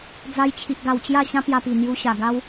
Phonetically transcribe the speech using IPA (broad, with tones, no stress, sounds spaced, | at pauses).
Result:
d͡z a˧ j t͡ɕʰ i˨ ʔ ɡ a˨˩ w t͡ɕ j a˥˧ ɕ ã˦ p j a˧ p i˨˩ n̪ j u˧ ɕ a˨˩ ɡ a˦ w